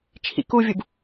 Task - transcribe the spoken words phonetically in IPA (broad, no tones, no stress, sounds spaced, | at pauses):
t͡ʃʰ ḭ k u vʲ u b